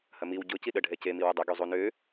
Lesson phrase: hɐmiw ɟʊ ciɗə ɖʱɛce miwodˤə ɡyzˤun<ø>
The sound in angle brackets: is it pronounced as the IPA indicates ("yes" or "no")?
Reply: yes